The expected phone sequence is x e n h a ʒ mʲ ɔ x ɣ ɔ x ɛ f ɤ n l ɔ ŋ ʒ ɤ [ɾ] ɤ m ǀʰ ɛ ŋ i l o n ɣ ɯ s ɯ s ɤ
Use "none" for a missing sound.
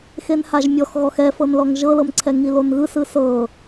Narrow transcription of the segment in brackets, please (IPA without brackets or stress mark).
l